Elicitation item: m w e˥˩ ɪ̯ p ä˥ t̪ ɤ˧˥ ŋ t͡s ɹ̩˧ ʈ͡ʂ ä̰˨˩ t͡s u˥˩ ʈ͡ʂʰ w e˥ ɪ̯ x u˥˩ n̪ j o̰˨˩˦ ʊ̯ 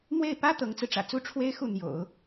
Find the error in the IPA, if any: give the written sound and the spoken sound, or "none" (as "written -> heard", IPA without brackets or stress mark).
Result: none